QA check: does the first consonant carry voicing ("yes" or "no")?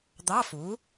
yes